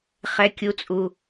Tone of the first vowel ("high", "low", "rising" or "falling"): high